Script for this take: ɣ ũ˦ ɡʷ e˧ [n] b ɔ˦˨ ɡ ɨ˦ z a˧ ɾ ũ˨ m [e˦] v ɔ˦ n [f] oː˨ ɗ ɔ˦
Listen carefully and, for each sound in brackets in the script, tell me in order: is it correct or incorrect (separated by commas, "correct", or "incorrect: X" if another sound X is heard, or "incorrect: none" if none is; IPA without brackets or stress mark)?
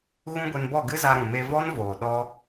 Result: correct, incorrect: e˧, incorrect: v